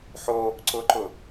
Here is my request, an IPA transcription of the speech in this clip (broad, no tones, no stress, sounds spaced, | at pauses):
ħ o | ǀ ʊ ǃ ʊ